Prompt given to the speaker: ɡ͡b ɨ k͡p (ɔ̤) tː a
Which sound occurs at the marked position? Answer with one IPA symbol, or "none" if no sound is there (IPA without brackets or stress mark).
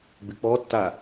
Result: ɔ